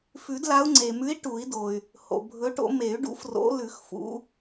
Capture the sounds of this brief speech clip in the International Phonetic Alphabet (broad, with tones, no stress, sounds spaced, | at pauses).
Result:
f ʉ˨˩˦ d l a˨˦ u̯ ŋ͡ǀ e˩ m ʉ˨˦ i̯ ʈ u˨˩˦ i̯ d o˩ y̯ | h o̰˩ bʱ ɵ˨˦ ʈ o̰˨˦ m e˨˩˦ y̯ ɖ ṵ˨˦ f r o̰˨˦ l ʉ˨˩˦ x f ṵ˨˦